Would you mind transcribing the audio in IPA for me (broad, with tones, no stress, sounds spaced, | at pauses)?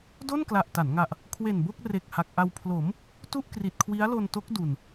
d o˥˩ n k l a˨˩ ʔ t a˩˦ n ŋ a˨˩ ʔ | kʰ w e˨˩ n b o˥˩ k̚ r e˨˩ k̚ h a˨˩ k̚ ʔ a˧ w pʰ l o˩˦ m | t u˥˩ ʔ k r i˨˩ t̚ kʰ w i˦˥ a̯ l o˧ n t o˦˥ k̚ d u˧ n